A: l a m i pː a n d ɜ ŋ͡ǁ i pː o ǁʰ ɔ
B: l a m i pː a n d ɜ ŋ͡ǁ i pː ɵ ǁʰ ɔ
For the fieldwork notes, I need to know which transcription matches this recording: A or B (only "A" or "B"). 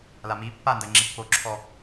A